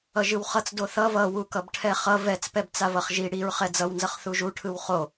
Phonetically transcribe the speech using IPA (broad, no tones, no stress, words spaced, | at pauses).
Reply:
ʌʒɯwχʌt͡s doθʌ vʌwu kʌbʈʰɛχʌ vɛt͡spɛb t͡savʌχʒi ɽiɹ χɛd͡zʌwnzʌχ θuʒuʈʰɯw χo